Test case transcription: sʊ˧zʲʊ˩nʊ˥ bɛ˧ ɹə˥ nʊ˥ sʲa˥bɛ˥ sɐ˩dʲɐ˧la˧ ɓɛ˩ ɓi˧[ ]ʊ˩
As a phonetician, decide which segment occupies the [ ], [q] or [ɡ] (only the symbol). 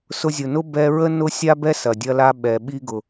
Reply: ɡ